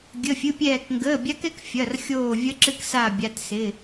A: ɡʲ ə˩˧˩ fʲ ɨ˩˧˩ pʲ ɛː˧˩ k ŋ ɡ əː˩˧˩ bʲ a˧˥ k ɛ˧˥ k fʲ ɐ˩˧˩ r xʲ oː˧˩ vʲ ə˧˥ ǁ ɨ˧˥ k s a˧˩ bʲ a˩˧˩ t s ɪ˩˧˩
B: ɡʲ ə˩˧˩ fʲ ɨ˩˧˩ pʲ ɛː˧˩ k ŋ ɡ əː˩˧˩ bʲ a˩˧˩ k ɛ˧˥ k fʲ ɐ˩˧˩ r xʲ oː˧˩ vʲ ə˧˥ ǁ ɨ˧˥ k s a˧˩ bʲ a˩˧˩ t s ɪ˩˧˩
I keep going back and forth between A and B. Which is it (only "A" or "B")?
A